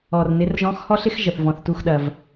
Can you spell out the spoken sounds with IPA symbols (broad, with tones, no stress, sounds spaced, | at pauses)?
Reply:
ɔ˩ r n ɪ˩˧ r ʒ ɔ̃˧˥ x h ɔ˥ ɬ ɪ˥ x ʒ ə˩ θ v ɔ̃˩ θ t u˧ x ɗ ɐ˩ v